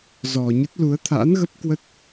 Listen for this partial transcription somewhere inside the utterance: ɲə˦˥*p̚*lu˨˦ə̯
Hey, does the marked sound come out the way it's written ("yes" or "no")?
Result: no